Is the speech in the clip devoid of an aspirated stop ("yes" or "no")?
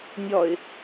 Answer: yes